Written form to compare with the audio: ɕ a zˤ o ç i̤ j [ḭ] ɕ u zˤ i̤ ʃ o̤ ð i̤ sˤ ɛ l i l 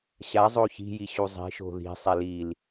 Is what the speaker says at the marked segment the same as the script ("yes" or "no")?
no